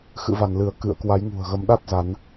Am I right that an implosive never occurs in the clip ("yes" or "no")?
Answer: no